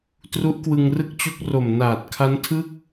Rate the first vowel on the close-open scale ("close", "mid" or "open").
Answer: close